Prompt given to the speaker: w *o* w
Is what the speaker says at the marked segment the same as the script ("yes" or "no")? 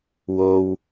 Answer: yes